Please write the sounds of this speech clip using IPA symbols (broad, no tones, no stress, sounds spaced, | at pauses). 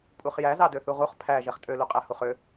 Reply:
pʼ u χ j æ z ɑ d ø θ u ʁ u χ pʰ æ ʒ ɛ χ tʼ ø l u qʼ æ h u χ ø